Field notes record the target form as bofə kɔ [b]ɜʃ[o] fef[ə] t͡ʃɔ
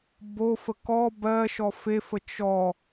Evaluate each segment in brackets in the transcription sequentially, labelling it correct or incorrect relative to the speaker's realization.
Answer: correct, incorrect: ɔ, correct

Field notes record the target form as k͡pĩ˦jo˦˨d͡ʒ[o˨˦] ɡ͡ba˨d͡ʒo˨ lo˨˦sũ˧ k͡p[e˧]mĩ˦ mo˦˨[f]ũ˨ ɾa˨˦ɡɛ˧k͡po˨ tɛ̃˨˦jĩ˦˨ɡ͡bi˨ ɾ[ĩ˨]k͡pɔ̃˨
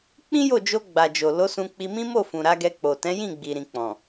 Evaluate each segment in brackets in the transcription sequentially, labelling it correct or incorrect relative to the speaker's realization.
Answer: incorrect: o˧, incorrect: i˧, correct, correct

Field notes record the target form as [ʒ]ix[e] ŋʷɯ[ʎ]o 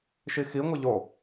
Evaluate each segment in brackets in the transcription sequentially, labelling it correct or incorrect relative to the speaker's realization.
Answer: incorrect: ʃ, incorrect: i, correct

